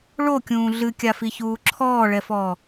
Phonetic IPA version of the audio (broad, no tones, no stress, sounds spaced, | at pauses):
ɭ o kʲ ũː ɮ ɨ kʲ a f i ç uː ǁʰ ɔː ɭ ɛ f ɔː